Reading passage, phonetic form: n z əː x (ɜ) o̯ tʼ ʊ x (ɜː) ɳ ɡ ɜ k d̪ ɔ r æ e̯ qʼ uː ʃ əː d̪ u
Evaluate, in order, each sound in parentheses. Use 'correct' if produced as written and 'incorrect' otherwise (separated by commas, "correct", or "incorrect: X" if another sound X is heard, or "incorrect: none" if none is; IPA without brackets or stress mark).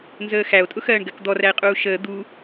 incorrect: æ, correct